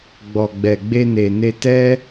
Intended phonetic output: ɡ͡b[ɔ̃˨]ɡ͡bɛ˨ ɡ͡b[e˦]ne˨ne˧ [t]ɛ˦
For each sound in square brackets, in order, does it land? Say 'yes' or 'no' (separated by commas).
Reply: no, no, yes